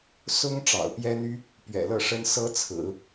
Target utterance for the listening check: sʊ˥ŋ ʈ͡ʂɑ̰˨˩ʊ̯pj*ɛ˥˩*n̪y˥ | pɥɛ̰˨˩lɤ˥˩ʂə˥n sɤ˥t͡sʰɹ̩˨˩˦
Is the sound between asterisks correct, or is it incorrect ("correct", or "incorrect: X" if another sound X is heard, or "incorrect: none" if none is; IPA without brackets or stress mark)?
incorrect: ɛ˥